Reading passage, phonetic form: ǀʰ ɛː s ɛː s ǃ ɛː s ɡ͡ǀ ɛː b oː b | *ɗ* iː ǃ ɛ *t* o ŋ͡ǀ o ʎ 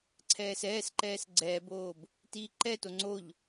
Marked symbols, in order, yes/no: no, yes

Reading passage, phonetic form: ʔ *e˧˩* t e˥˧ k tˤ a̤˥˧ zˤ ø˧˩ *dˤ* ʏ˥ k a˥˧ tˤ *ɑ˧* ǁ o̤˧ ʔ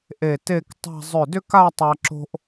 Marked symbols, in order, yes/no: yes, no, no

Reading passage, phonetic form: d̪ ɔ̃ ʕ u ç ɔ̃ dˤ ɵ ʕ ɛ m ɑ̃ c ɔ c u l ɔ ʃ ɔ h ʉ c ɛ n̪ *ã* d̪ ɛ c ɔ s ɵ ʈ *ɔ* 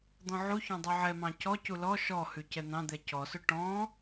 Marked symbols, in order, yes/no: no, no

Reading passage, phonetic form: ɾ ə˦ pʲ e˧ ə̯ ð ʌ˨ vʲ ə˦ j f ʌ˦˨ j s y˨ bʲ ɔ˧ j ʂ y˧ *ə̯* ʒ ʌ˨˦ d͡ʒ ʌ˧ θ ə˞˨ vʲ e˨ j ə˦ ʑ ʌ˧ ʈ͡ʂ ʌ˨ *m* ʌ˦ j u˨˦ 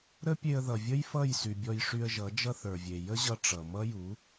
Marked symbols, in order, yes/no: yes, yes

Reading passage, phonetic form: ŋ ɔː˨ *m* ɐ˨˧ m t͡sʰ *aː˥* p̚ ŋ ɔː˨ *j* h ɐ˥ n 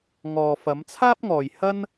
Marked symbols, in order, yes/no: no, yes, yes

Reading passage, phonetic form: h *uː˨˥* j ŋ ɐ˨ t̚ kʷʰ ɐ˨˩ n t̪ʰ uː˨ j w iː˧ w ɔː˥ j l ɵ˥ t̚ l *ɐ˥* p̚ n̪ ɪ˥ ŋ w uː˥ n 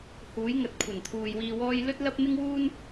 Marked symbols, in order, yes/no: yes, yes

